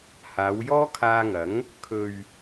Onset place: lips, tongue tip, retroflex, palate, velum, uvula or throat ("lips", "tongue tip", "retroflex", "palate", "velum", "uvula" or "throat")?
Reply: throat